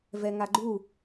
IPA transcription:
vɛŋaɡ͡ǃu

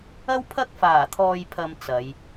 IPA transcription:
ɐ˥w pʰɐ˥k̚ faː˨˩t̪ʰɔː˨jpʰɐ˨m t͡sɐ˨˧j

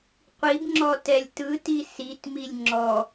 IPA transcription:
qʷibŋ͡ǁɔtɛlʲ tɯti sitmilʲ ŋ͡ǁɔ

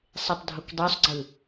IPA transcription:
sˤetˤdʱokdˤøsˤɡ͡ǀɯ

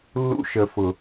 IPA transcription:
lːṵ˦ʃə˨fʊ˨

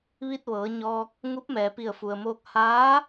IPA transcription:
ʋi˧t̚ʋɤː˩˧ɲɔː˧k̚ | ŋu˧˥p̚mɛː˩pi˧˩ə̯fu˩ə̯ moː˧k̚ haː˧˥

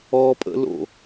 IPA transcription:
ɔpʼə̰lo̰

